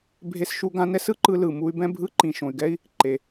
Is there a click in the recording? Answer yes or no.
yes